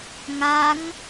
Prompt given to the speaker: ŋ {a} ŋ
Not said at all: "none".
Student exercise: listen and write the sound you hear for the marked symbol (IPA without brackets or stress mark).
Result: a